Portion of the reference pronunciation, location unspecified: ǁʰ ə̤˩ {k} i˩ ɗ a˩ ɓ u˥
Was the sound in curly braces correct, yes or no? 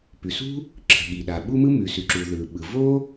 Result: no